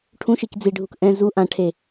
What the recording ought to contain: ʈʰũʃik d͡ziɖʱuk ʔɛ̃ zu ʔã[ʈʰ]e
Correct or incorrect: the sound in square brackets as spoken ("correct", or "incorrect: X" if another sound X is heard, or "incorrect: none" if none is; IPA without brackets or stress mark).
correct